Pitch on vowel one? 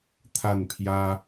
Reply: falling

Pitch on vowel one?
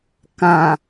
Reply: low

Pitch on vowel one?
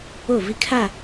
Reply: falling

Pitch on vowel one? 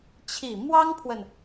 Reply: low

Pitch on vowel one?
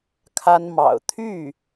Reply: high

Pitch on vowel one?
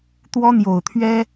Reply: high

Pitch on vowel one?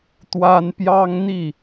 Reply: high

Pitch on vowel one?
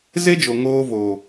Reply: high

